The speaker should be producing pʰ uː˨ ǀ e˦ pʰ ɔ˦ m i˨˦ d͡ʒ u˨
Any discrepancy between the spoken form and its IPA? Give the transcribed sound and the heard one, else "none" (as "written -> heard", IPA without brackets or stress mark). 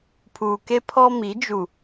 ǀ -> k